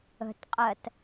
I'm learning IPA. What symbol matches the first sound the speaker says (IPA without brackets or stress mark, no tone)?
ə̤